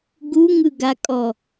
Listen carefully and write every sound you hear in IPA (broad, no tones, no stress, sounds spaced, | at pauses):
ɡ u ŋ ɯ ɡ a kʼ ɔ